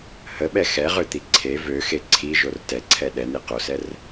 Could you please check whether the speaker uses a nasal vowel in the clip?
no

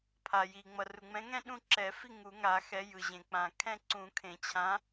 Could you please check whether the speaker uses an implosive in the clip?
yes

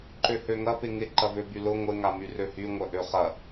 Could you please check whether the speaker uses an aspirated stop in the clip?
no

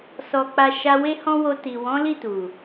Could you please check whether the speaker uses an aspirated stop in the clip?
no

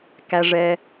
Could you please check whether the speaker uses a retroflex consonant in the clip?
yes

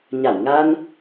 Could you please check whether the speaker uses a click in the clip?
no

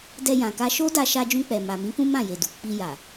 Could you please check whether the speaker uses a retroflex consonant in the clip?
no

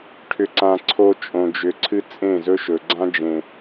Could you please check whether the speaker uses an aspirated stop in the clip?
yes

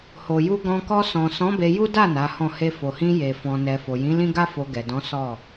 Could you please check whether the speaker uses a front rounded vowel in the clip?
no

